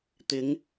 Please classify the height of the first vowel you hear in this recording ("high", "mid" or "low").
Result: high